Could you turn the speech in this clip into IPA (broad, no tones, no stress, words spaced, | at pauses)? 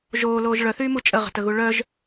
ʒoːloːʒ ɭœθyːmu t͡ʃʼəʁə̤təɣu ɭœʒ